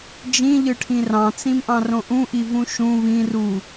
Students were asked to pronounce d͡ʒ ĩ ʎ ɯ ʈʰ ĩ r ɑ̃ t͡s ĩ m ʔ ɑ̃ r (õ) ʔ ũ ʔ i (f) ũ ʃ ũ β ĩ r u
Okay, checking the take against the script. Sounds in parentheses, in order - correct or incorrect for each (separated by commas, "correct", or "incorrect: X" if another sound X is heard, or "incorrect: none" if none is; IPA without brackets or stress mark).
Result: correct, incorrect: v